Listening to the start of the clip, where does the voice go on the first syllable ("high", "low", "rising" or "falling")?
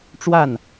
falling